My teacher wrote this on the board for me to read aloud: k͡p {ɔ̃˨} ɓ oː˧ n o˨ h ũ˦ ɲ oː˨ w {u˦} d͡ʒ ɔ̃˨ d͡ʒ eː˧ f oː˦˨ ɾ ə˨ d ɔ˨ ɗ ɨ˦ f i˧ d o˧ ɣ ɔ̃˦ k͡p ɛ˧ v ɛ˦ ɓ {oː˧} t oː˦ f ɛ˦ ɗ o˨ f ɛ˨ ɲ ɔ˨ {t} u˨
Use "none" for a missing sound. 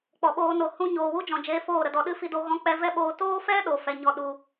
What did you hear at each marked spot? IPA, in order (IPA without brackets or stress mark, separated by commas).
ɔ˨, u˦, oː˧, ɗ